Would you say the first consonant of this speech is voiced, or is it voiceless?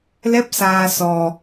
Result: voiced